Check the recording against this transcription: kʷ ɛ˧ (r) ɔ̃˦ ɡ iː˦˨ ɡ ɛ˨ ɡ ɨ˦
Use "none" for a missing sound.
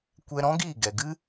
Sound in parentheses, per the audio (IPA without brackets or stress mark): ɾ